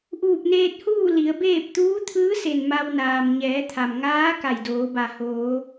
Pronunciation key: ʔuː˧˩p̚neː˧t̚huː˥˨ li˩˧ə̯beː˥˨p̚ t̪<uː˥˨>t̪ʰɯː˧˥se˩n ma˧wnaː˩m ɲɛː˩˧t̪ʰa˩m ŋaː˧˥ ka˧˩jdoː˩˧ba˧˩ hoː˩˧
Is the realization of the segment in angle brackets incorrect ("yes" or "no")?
yes